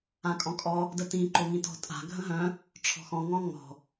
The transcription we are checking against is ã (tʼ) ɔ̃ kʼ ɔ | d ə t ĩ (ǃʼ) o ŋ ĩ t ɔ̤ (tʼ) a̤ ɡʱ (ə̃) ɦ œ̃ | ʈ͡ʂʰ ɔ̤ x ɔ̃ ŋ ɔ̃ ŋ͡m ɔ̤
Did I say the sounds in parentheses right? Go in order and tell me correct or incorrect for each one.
incorrect, incorrect, correct, correct

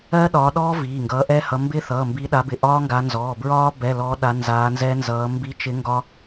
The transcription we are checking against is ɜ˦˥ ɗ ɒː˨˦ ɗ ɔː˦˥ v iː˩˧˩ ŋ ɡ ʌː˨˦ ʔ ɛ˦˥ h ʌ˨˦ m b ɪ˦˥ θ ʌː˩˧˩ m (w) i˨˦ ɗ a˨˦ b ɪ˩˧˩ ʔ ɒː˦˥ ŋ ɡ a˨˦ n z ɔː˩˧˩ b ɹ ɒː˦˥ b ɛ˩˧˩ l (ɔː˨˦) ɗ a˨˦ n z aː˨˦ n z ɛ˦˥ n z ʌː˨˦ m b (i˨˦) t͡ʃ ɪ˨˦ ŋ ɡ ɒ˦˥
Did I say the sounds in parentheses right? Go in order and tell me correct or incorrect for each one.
incorrect, correct, correct

